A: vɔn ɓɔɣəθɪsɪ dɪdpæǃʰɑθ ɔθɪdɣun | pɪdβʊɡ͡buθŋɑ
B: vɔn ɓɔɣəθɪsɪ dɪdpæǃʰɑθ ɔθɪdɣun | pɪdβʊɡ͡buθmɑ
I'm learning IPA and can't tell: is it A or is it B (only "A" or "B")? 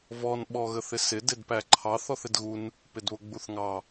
A